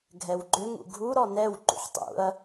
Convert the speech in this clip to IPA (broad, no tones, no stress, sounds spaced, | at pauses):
ɡʱ ɛ w ɡ͡ǃ ʏ ŋ ṵ ɡʱ u ɾ ɔ n ɛ w ǃ ṵ ħ tˤ ṵ ɐ̯